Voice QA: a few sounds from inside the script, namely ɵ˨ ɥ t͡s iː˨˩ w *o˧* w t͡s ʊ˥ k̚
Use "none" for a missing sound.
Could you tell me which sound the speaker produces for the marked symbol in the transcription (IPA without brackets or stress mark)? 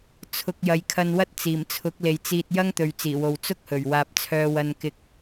o˨